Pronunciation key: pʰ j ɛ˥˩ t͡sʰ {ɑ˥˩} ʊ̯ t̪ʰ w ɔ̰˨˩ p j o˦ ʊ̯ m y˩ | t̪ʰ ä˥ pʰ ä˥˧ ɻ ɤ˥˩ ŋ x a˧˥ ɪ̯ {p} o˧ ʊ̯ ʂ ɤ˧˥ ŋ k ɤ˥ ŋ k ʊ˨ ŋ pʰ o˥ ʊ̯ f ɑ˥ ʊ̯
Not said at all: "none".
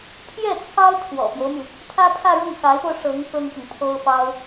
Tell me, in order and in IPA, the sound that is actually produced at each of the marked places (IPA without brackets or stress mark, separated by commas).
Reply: ɑ˥, p